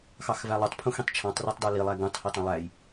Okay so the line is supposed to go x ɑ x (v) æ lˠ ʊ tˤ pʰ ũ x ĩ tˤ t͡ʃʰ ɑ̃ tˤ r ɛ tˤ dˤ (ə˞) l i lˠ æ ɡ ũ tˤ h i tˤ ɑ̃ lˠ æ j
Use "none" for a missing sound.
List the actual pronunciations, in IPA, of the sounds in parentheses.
v, ə˞

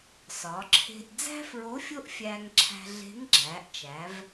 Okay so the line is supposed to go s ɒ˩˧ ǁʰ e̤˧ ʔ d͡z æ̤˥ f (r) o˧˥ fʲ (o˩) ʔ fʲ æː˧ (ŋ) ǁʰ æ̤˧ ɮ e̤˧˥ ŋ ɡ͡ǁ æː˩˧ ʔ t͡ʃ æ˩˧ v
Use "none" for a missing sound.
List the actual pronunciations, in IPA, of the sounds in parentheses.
ɹ, o˥, ŋ

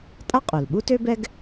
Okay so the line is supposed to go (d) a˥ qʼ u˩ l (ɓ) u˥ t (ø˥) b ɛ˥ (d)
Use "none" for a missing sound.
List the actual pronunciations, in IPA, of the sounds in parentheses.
tʼ, ɓ, ø˥, ɡ

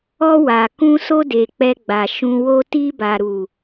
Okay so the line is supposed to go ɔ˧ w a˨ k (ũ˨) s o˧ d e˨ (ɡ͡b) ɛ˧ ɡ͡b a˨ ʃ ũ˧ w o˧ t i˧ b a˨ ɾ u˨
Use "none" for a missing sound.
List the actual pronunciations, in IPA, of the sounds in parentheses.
ũ˧, k͡p

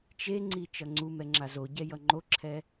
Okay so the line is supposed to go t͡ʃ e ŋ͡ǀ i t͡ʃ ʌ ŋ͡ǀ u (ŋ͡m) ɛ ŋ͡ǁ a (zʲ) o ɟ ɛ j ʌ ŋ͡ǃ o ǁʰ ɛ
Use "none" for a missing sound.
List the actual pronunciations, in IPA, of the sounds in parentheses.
m, z

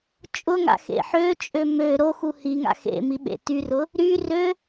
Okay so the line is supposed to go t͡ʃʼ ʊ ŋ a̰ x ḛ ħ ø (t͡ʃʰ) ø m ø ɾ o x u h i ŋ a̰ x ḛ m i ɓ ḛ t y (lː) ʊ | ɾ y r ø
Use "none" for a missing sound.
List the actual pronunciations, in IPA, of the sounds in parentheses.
t͡ʃʼ, r

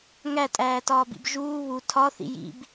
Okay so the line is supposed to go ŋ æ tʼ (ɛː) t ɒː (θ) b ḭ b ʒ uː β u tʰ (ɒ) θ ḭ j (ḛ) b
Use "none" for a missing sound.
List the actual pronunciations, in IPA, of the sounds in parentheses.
æː, none, ɒ, ḭ

